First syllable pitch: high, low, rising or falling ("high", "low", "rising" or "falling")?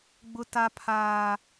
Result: high